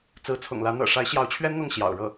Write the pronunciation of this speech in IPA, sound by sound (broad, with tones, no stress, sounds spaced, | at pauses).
t͡s ɹ̩˧˥ t͡sʰ ʊ̰˨˩ ŋ l ä˧˥ n̪ ɤ̰˨˩ ʂ a˧˥ ɪ̯ ɕ j ɑ˧˥ ʊ̯ t͡ɕʰ ɥ ɛ˥ n n̪ ʊ˥˩ ŋ ɕ j ɑ̰˨˩ ʊ̯ ɻ ɤ˥˩